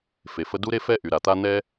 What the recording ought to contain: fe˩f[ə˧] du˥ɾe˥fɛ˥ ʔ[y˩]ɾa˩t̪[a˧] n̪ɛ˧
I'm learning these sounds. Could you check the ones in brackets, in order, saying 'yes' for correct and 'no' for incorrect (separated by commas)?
yes, yes, yes